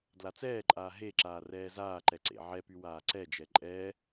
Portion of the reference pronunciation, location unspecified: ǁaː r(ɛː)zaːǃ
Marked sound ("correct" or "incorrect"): correct